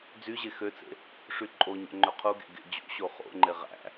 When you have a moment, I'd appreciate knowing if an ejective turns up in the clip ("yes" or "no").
yes